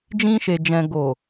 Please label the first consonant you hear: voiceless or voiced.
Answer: voiced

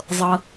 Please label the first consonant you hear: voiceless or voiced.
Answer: voiced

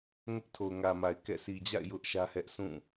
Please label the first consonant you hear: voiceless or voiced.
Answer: voiced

